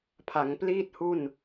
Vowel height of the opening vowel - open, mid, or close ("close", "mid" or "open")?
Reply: open